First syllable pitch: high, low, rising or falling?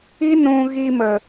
high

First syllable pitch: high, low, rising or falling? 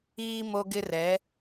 low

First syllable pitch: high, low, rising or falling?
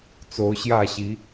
rising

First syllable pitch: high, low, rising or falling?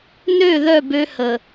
falling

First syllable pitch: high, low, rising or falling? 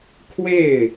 falling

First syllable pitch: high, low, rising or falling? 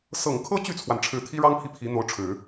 low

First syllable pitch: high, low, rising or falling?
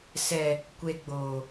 low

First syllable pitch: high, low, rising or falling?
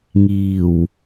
low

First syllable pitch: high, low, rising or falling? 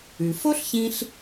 low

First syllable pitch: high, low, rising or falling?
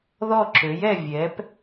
falling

